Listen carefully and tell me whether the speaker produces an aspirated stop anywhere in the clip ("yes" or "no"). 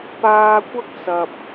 no